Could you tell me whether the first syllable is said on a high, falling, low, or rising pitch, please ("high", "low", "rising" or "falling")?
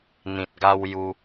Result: low